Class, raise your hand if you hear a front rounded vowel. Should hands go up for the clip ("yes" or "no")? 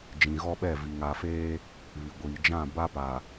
no